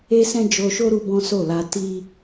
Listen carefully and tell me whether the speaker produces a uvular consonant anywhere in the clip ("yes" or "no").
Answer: no